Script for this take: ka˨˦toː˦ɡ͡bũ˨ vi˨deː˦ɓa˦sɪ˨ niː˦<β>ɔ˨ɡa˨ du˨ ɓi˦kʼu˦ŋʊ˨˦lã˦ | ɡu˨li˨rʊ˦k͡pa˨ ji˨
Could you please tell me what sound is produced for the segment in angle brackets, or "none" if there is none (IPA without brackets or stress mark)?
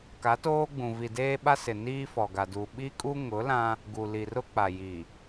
f